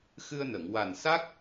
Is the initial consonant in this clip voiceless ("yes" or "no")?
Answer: yes